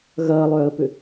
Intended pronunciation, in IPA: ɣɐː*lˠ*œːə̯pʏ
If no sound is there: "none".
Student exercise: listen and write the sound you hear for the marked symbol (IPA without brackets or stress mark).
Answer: lˠ